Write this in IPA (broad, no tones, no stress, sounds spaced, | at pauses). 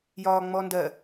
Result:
j ɒː ŋ͡m ɔ n d ɜ